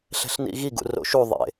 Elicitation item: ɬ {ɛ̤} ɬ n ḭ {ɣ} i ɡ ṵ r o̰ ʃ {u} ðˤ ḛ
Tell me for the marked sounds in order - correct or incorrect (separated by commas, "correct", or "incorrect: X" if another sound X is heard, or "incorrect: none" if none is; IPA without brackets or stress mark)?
correct, correct, correct